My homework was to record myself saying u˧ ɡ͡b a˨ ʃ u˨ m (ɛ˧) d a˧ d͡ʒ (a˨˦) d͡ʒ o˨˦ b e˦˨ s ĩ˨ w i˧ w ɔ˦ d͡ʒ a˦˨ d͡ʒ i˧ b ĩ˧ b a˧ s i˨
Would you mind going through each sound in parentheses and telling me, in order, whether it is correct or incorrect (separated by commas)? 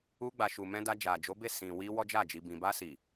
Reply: incorrect, incorrect